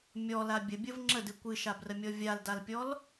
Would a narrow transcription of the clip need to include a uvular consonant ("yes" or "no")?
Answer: no